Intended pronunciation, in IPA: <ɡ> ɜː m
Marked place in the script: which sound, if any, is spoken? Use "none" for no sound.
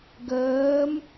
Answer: ɡ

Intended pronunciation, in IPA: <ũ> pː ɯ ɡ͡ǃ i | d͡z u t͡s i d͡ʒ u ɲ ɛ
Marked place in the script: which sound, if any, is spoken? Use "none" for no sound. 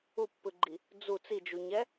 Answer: u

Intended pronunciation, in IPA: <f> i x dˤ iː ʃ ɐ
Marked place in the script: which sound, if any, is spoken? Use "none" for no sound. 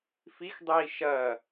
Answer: f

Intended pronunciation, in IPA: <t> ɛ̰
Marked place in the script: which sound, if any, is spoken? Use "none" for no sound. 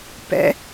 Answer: p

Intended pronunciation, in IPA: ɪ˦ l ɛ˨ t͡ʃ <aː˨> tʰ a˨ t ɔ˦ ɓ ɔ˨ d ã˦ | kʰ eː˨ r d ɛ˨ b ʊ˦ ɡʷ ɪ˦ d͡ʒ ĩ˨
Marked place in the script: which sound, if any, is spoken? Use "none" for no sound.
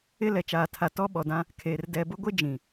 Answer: aː˨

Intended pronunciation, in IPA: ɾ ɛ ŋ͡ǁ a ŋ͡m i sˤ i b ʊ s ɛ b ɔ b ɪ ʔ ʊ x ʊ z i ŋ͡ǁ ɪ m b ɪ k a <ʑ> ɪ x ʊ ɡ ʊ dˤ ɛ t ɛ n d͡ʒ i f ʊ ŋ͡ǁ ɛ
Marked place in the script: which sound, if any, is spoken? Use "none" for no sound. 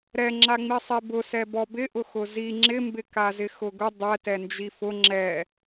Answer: z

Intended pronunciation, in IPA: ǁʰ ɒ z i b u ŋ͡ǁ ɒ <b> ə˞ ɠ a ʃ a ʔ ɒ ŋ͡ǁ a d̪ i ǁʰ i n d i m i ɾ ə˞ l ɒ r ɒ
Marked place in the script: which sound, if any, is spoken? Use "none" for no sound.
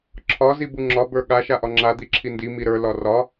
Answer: b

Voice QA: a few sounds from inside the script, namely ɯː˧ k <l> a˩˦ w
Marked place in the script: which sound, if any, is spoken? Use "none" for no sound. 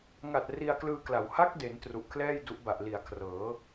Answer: l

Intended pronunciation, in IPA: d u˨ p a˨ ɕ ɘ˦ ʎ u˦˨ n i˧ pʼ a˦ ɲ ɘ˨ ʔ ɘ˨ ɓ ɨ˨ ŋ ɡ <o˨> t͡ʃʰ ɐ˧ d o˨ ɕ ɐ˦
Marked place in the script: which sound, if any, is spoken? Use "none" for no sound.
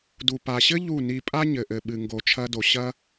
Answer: o˨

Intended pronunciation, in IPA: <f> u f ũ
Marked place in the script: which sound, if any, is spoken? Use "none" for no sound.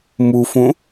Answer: m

